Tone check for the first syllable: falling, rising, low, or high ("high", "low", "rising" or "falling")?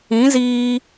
rising